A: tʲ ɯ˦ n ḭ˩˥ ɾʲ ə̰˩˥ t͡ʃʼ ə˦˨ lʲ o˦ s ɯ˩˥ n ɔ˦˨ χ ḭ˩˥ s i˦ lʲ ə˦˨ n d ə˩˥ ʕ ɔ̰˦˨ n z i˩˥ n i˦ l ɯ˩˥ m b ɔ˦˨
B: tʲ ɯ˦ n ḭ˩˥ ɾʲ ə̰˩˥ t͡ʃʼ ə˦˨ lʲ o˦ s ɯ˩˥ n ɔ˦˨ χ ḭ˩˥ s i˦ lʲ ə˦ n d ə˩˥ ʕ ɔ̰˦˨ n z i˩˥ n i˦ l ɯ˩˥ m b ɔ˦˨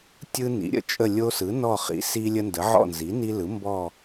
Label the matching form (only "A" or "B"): B